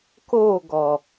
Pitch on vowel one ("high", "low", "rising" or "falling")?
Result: falling